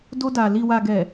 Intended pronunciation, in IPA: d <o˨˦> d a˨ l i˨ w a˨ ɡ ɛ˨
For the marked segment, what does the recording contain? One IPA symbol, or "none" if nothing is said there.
o˧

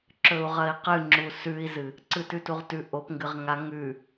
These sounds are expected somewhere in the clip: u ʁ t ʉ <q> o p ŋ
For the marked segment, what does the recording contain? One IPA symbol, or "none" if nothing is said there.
ʔ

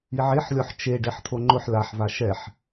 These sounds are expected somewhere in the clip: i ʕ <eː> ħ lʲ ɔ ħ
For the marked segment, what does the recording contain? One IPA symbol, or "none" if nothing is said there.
e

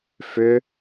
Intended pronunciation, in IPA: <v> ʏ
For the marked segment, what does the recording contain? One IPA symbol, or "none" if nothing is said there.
f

